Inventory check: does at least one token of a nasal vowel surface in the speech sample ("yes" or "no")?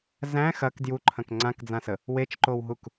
yes